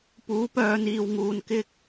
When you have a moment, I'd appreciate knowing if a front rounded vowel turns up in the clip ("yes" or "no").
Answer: yes